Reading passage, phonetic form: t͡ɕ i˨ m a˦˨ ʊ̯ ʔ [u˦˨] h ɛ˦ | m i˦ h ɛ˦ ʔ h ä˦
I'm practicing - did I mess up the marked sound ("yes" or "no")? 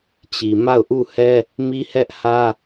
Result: no